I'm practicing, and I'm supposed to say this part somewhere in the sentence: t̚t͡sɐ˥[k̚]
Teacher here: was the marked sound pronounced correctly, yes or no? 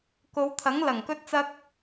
yes